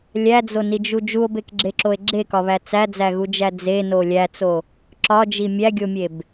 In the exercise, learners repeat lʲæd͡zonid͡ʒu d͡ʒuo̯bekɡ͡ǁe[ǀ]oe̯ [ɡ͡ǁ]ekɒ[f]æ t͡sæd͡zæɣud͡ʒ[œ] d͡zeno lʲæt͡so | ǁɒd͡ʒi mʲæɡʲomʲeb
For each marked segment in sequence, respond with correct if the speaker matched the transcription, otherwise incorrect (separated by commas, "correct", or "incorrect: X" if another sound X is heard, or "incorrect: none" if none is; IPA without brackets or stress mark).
incorrect: ǁ, correct, incorrect: β, incorrect: æ